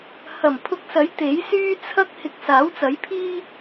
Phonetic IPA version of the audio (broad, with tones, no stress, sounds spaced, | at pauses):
h ɐ˨˩ m pʰ ʊ˧ k̚ s ɐ˨˥ j t̪ e˨˥ j s yː˥ t͡sʰ ɐ˥ k̚ h ɪ˨˥ k̚ s aː˨˥ w t͡s ɐ˨˥ j pʰ iː˥